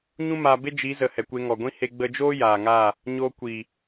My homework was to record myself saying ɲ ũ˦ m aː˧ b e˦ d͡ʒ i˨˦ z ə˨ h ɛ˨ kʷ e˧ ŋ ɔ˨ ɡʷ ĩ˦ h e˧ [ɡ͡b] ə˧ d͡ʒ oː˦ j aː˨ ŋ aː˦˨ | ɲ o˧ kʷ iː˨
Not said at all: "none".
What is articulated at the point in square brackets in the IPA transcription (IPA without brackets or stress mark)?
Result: ɡ͡b